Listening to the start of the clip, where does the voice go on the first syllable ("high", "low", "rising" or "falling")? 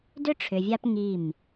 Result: high